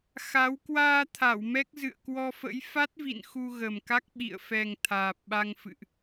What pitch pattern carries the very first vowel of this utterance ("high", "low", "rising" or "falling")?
rising